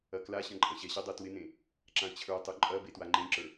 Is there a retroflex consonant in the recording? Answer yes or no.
no